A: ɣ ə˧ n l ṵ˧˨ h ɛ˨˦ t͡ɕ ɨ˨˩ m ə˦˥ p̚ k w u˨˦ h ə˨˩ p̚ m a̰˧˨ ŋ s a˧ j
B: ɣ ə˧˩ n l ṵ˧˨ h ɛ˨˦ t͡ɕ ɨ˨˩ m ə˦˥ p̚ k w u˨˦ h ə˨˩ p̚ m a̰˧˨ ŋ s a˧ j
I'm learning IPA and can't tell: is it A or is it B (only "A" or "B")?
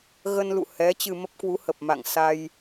A